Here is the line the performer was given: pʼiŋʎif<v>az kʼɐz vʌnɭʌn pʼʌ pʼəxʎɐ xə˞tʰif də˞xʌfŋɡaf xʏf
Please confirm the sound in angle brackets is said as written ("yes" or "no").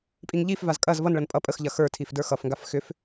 yes